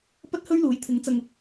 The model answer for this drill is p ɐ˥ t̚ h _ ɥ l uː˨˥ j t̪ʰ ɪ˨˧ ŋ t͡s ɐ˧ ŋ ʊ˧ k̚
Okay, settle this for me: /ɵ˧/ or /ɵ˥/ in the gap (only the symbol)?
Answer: ɵ˥